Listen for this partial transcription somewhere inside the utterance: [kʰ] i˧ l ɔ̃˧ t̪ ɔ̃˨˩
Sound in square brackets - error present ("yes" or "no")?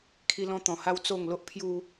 no